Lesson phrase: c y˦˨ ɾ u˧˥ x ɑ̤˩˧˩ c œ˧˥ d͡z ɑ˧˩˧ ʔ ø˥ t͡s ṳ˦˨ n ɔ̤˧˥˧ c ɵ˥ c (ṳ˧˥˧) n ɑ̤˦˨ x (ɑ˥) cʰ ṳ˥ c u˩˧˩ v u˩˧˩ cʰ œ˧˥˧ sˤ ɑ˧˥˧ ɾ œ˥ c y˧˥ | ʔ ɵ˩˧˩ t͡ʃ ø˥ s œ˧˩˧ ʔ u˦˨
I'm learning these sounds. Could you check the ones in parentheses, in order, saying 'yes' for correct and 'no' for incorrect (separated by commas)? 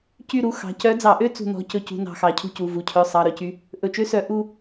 yes, no